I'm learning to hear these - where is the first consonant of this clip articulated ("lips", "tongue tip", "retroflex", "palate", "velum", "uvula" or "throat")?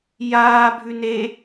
palate